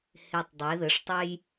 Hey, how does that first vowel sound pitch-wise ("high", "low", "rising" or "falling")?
low